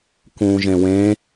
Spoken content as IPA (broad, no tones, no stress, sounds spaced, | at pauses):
k ũː ʒ ẽ w ẽ